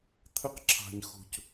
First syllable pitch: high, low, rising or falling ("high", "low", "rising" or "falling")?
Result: high